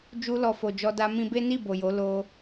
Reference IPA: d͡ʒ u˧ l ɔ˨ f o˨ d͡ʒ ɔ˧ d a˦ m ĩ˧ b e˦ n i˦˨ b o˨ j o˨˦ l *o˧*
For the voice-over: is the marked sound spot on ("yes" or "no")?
yes